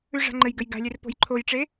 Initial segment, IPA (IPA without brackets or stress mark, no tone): ʉ